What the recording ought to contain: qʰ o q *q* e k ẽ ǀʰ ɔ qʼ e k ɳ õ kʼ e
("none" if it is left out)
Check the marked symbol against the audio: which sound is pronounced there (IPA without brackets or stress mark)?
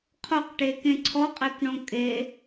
ʈ